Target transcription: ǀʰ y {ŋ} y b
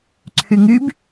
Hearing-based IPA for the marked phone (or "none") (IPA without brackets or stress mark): ŋ